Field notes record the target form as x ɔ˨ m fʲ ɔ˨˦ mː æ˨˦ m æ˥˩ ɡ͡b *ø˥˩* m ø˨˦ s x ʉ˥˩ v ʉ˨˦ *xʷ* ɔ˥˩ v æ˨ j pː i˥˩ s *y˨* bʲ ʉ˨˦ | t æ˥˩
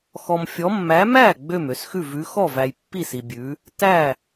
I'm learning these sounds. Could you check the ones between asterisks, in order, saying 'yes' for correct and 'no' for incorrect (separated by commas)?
yes, no, no